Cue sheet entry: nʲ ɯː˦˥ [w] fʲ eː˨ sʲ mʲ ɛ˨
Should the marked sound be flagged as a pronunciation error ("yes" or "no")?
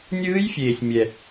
yes